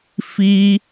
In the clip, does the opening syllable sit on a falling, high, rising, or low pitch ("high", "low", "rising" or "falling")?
high